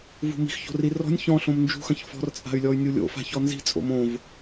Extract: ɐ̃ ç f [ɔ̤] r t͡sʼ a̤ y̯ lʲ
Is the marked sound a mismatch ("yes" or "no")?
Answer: no